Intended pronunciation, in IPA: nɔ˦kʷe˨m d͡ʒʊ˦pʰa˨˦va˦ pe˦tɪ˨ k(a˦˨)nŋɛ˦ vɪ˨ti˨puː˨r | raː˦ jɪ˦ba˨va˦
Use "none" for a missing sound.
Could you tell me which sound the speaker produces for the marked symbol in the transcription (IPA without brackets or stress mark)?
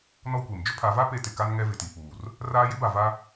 a˦